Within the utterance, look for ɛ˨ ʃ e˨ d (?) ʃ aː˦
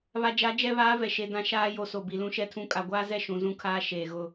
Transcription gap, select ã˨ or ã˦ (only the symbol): ã˦